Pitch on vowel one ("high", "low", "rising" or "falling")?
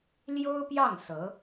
high